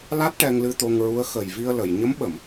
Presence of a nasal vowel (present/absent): absent